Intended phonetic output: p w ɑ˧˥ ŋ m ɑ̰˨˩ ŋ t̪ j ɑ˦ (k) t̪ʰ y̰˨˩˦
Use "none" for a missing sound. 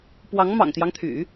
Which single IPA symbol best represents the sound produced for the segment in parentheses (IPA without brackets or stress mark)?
ŋ